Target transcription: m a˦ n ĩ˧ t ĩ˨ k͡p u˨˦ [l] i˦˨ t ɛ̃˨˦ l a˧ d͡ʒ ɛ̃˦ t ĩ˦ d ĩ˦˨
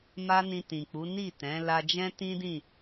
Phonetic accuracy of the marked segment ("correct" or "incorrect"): incorrect